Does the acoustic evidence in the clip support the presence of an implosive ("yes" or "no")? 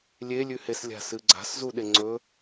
yes